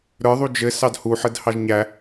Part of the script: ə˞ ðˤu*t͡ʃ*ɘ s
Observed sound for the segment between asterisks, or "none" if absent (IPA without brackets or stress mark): d͡ʒ